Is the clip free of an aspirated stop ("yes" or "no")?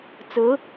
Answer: yes